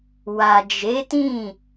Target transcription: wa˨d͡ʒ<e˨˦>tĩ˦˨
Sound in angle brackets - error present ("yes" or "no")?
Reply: no